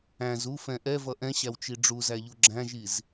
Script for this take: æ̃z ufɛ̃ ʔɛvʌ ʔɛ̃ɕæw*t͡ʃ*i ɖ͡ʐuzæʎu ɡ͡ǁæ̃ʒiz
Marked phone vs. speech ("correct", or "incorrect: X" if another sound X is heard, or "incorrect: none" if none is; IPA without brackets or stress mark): correct